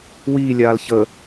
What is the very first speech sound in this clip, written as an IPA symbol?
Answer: w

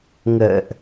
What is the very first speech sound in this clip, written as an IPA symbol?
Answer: ŋ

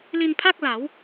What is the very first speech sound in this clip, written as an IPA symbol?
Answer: l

